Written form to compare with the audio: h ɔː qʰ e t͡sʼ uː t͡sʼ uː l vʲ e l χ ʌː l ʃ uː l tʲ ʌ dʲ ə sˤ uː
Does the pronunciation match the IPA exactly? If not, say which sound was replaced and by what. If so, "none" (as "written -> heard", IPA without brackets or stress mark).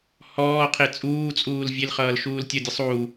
none